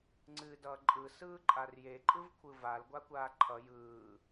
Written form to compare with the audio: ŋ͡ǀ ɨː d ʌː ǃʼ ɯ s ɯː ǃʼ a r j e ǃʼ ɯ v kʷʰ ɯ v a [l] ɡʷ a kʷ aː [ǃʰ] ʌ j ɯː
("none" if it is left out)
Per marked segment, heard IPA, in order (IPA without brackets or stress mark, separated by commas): l, ǃʰ